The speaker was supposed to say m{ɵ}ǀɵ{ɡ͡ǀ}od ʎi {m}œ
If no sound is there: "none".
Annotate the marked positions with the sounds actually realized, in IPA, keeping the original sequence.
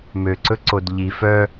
ø, ǀ, f

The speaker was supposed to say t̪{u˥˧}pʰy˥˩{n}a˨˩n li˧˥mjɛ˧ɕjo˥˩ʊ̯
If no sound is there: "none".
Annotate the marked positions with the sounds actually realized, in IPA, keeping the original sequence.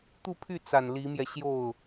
u˥˧, t͡s

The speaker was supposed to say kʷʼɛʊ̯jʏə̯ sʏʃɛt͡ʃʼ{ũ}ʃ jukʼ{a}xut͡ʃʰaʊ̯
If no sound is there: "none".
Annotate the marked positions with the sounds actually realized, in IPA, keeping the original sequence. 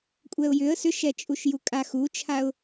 u, a

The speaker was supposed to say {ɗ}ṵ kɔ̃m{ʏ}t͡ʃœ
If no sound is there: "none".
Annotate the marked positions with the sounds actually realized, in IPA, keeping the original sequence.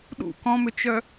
ɗ, ʏ

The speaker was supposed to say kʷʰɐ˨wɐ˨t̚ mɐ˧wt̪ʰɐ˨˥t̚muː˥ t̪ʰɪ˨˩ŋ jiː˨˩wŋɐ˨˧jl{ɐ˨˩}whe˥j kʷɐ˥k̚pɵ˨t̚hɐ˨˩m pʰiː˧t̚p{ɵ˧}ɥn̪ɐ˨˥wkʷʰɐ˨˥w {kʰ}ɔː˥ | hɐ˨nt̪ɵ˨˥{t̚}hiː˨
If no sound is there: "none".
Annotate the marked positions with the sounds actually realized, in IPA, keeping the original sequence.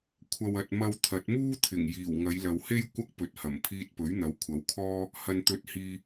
ɐ˨, ɵ˨˥, kʰ, t̚

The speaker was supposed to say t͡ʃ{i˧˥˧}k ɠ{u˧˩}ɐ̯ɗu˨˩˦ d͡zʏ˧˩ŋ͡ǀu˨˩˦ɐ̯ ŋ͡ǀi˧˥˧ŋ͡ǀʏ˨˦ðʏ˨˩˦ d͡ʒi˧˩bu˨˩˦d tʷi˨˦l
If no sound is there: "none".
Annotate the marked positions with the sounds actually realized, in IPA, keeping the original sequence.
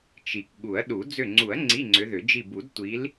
i˩, u˨˩˦

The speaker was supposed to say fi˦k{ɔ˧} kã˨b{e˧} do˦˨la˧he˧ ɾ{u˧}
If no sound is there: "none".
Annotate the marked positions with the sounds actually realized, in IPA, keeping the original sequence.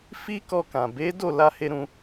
ɔ˧, e˨˦, ũ˧

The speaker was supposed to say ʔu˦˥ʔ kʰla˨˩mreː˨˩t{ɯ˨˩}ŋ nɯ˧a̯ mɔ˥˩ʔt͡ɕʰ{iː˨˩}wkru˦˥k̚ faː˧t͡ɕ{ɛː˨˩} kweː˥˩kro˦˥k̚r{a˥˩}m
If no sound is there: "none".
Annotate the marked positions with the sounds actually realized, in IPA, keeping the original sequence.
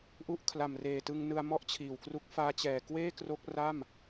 ɯ˧, iː˨˩, ɛː˨˩, a˥˩

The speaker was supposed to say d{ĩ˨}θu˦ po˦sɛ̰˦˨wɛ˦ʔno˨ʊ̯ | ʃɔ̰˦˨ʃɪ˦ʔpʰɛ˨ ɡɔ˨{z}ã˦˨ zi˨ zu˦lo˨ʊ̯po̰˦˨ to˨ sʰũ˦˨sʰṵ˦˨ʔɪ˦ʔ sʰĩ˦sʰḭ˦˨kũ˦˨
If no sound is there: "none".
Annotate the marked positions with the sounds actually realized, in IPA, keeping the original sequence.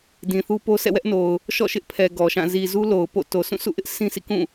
ĩ˨, ʃ

